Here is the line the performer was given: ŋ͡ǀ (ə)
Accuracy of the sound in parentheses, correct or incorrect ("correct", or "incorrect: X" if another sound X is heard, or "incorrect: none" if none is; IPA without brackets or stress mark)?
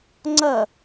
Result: incorrect: ɐ